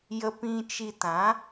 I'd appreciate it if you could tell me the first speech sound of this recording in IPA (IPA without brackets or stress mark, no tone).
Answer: j